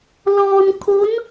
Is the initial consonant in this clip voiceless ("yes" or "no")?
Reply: no